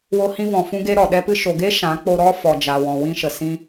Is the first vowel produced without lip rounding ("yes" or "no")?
no